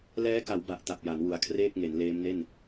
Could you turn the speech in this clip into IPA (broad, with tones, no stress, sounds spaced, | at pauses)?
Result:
l ɛː˦˥ k a˩˦ w b a˦˥ ʔ t a˨˩ p̚ j a˩˦ n w u˩˦ a̯ kʰ r eː˥˩ k̚ ŋ e˩˦ n l eː˦˥ m n e˥˩ n